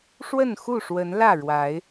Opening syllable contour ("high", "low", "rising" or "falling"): falling